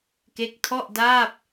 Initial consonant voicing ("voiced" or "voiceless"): voiceless